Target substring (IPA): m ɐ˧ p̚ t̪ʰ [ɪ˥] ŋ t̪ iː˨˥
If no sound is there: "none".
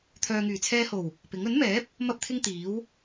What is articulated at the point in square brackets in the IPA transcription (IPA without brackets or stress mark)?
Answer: ɪ˥